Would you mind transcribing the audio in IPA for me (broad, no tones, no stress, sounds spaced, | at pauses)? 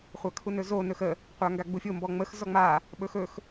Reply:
χʷ a kʰ u n ɵ z o n ɵ x ə | qʷ a ŋ ɡ a ɡ͡b u fʲ o m b ɔ ŋ͡m ə x z ɔ ŋ͡m a | ɓ ɵ x ɵ x